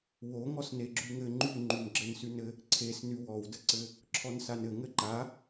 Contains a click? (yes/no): yes